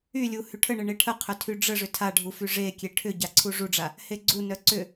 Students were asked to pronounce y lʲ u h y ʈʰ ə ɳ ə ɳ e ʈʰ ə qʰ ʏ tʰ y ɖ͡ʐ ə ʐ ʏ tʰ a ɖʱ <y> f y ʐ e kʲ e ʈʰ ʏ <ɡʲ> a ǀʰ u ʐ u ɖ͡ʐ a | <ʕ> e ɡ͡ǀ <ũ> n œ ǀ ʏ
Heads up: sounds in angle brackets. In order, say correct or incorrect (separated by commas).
incorrect, incorrect, incorrect, incorrect